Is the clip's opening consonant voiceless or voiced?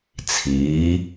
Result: voiceless